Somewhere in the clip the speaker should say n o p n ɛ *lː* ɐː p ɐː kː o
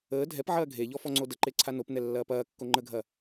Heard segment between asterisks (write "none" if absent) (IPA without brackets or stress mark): lː